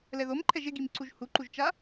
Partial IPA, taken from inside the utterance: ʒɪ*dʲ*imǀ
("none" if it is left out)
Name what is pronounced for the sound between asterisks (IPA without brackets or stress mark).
ɡ